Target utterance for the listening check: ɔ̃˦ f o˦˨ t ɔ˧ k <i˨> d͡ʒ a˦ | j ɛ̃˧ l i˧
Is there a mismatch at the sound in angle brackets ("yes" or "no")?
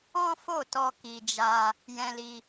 yes